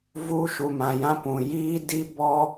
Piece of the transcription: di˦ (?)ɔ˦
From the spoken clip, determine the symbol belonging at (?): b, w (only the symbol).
b